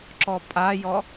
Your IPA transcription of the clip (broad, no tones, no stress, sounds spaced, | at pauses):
ǁ ɔ pʼ a j ɔ